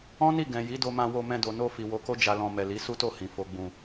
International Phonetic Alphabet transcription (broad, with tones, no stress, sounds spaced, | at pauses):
ɔ̃˦ n i˦˨ ɡ ɛ̃˨ j i˨˦ d o˧ m ã˧ w o˧ m ɛ̃˧ d o˨ n o˧ f i˨ w o˨˦ k o˦ d͡ʒ a˧ l ɔ̃˧ m ɛ˨ l i˨˦ s u˦ t o˦˨ h ĩ˨ f o˨ ɡ͡b ũ˨